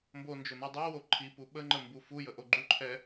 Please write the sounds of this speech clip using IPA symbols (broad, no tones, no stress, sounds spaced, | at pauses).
m b o n d͡ʒ ɵ n u dˤ o w o ǃʰ i p u ɓ ə ŋ͡ǃ ə m b u f u j ə ʔ o ɡ͡ǃ u ǃʰ ɛ